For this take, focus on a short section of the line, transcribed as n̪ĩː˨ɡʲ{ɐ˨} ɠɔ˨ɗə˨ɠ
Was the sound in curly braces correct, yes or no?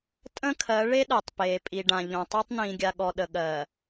no